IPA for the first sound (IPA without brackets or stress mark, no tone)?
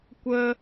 kʷ